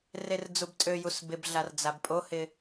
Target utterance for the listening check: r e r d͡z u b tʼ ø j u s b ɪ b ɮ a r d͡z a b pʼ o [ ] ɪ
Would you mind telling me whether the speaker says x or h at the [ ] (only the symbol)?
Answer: h